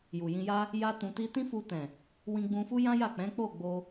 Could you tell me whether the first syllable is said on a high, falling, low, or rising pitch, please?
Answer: low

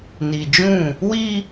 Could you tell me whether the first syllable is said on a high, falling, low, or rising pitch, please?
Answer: low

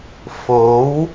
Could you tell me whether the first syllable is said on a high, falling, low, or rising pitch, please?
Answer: rising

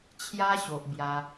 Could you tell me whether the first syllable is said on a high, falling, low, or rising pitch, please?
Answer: high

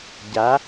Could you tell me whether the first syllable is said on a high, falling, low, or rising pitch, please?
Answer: rising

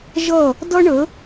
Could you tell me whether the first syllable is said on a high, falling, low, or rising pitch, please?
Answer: falling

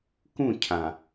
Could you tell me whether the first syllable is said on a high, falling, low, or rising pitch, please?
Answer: falling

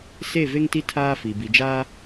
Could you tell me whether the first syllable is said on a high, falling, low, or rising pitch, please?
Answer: falling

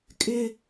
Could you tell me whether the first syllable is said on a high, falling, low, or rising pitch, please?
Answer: low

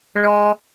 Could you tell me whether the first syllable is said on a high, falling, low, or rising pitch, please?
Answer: high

